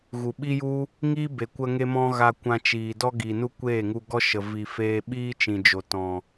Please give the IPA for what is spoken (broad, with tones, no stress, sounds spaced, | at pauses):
ɣ u˨ ɓ i˦ j u˦ | ŋ iː˦ b e˨ kʷ ə˧ ŋ e˦ m ɔ̃˦ ɣ a˧ kʷ ã˧ t͡ʃ iː˨ d ɔ˦ ɡ i˨ n u˦ kʷ eː˦˨ ŋ u˧ ɡ ɔ˦ ʃ ə˨ v i˨ f eː˧ ɓ iː˦ t͡ʃ ĩ˨ d͡ʒ o˨ t ɔ̃˨